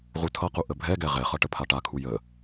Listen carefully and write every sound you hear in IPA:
ʁutʰʌqu ʔəbʱɛɡɛ ʁɛχʌ ʈəpʰaʈakʰu jə

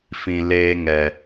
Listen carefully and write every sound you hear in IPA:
fĩ˨ leː˧ŋɛ˨

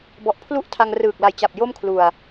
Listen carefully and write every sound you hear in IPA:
bɔ˨˩ʔpʰlu˥˩ʔtʰa˧ŋ rɯː˨˩k̚la˨˩jt͡ɕa˨˩p̚ jo˥˩mkʰlu˨˩a̯

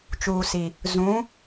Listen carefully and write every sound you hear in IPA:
t͡ʃuː˨si˨ | zũ˨˦

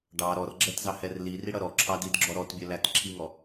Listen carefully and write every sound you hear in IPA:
ɖɑ ɾɔrɡ͡ǁɛtzɑhɛr liriɽʌ ɾɔǁʰɑdidɡ͡ǁɔ ɾɔtbʲɜlæt ǁʰiŋɔ

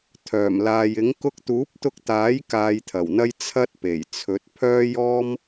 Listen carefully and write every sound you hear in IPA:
t̪ʰœː˨˩mlaː˨jɪ˨˥ŋ kʊ˧k̚t̪uː˨˥p̚t̪ʊ˧k̚t̪aː˨˥j kaː˧jt̪ʰɐ˨˩wn̪ɐ˥j t͡sʰɐ˥t̚ pe˨˩j t͡sʰɵ˨˥t̚ pʰœː˥jɔː˥m

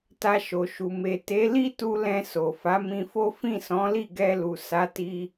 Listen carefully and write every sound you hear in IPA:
ta˧ʃo˨ʃu˨ me˨ te˨˦ li˦tu˧ lɛ̃˧ so˨fa˨˦ mĩ˧fo˦ fĩ˦˨sɔ̃˨˦li˦˨ ɡɛ˧lu˨ sa˨˦ti˧

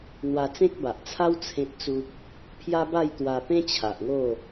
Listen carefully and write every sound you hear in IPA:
n̪wa˧t͡sẽ˦k̚ba˨ʔt͡sʰa˦w t͡sʰẽ˦t̚t͡su˦k̚ | pʰja˦ba˥˧jt̪wa˧ pẽ˦t͡ɕʰa˨ʔŋo˥˧

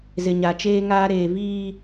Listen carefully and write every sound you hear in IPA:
zɪ˨ɲa˨t͡ʃeː˦ŋaː˦ ɾeː˨viː˦

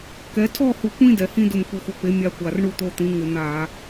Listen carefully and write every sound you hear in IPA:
kɛ˨˥ tʰɔ˥˨hu˧˩˧kʷĩ˦ dɛ˩hĩ˦dʊ˧˩m kʷi˧˩xʷɔ˧˩pe˨˥ mʲa˦kʷa˧˩r ɳu˥˨t̪o˦t̪ĩ˨˥ŋɪ˧˩˧ n̪a˧˩˧

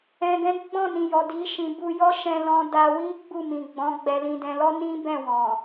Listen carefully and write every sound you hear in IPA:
ɛ̃˨ɡɛ̃˨˦ ɡ͡bɔ̃˦˨nĩ˨jɔ˨ di˨˦ʃĩ˧ bu˧jɔ˦ ʃɛ̃˧lɔ̃˧ da˧wi˦ ɡ͡bu˦˨mĩ˨ɡ͡bɔ̃˨˦ ɡ͡bɛ˦lĩ˦dɛ̃˦ lɔ˦nĩ˦bɛ̃˦˨ wɔ̃˨

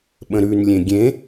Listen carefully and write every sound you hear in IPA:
ɓə̃ɾʉnlʲẽ ɡʲẽ

